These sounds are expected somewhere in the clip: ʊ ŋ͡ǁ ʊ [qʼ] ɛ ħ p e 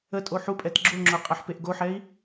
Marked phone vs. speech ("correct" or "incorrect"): correct